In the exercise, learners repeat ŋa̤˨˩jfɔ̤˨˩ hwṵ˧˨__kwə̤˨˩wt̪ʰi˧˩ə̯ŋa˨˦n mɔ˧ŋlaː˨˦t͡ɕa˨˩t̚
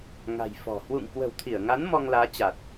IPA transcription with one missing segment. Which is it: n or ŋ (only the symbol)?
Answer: ŋ